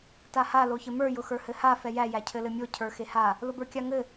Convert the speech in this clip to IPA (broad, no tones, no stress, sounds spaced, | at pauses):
t a h a l o ç ɘ m ə˞ j ʊ x ə˞ h ɘ h a f ɛ j æ j æ cʰ ɘ l ɘ mʲ o cʰ ə˞ x e h a | l ʊ b ə˞ kʲ a ŋ ɘ